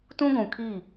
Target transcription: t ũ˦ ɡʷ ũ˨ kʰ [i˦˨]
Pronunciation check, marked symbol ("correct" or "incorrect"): correct